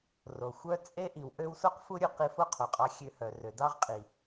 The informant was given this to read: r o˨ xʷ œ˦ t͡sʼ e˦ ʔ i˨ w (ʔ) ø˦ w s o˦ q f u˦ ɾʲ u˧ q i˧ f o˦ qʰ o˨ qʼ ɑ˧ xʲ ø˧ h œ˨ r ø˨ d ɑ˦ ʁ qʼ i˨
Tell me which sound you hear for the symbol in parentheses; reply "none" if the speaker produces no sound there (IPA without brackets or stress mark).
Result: ʔ